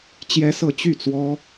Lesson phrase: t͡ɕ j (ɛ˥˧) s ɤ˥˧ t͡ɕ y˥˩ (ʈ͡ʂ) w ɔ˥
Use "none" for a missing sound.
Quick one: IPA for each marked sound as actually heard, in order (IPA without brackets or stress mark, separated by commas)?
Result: ɛ˥, t͡s